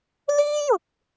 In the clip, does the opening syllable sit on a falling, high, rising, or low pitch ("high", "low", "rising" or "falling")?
high